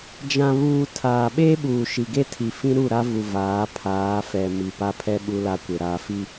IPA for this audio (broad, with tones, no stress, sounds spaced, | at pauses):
d͡ʒ ã˨ β uː˨ tʰ aː˨ ɓ e˦ ɓ uː˨ ʃ i˨ ɡ e˦ tʰ i˨ f ĩ˦ ɾ u˦˨ ɾ a˦ v u˨ v aː˨˦ pʰ aː˨˦ f ɛ˨ m i˨ p a˦ pʰ ɛ˦ ɓ u˦ l a˦ kʷ ɪ˨ ɾ aː˨ f i˦